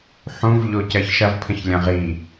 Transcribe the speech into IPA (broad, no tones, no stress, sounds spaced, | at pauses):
ħ ũ v ʎ o c ɜ ç ʃ ɐ v pʰ ə̃ ç lʲ ɐ̃ ʁ i